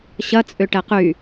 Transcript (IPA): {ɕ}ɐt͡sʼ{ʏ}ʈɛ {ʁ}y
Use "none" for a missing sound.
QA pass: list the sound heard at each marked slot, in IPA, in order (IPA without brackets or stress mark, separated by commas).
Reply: ɕ, ʏ, q